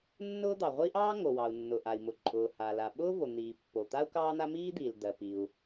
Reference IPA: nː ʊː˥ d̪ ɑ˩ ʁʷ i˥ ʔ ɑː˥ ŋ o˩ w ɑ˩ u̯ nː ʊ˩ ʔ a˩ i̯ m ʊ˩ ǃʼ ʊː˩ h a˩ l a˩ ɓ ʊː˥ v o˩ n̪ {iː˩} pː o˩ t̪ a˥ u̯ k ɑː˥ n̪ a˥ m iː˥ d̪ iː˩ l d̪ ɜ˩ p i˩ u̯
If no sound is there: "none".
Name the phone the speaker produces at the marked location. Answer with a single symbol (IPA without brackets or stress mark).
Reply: iː˩